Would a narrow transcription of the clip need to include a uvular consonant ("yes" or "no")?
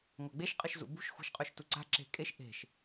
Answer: yes